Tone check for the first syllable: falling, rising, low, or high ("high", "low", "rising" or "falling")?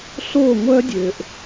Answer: falling